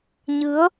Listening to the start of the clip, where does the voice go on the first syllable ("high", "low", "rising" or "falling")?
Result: rising